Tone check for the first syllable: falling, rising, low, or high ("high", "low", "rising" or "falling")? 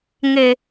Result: low